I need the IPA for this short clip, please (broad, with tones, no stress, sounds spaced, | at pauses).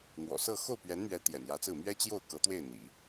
n̪ w ɔ̰˨˩ s ɤ˥˧ x o˥˩ ʊ̯ p ɥ ɛ˧˥ n m ɥ ɛ˧˥ t̪ j ɛ̰˨˩ n j ä˧˥ t͡s ɹ̩˥˩ m ɥ ɛ˥ t͡ɕ j o˥˩ ʊ̯ k ɤ˧˥ t̪ w e˥˩ ɪ̯ n̪ ḭ˨˩˦